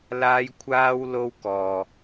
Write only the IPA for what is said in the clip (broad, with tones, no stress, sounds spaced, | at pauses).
l aː˥ j kʷʰ aː˥ w l o˥ w k ɔː˧